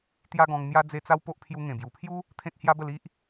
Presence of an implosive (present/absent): absent